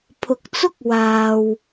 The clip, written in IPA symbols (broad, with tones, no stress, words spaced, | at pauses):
pʰʊ˨k̚t͡sʊ˥k̚ waː˧w